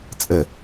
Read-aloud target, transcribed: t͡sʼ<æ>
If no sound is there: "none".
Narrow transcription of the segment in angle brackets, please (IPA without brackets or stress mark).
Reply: ə